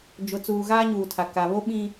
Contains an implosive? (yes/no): yes